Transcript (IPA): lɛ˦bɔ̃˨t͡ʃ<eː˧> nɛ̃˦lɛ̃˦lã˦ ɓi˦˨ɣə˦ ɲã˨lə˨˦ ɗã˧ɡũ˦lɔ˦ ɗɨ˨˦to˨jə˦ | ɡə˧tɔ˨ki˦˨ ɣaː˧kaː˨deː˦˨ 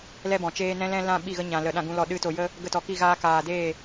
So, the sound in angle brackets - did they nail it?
no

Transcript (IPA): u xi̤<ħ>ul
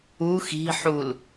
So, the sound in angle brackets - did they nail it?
yes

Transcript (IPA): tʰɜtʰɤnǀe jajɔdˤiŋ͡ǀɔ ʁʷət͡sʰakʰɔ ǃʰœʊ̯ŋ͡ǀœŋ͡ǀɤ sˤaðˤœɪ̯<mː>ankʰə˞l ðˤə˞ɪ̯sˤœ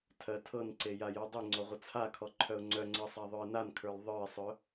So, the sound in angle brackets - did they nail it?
no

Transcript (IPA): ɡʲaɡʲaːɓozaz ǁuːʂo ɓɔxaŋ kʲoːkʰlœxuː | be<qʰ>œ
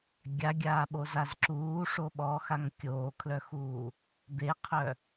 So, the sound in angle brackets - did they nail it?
yes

